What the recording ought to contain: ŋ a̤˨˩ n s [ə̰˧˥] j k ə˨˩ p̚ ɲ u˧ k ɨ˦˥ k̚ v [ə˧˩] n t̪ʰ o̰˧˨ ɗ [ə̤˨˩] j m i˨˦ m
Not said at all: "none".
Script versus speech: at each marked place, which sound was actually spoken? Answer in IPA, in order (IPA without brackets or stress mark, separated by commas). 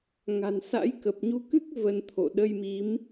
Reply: a̰˧˥, ə˧, ə˧